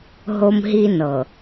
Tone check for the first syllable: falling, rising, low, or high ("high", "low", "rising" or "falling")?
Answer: high